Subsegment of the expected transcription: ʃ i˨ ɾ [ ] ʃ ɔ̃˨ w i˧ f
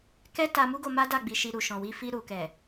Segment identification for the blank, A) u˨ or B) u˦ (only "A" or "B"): A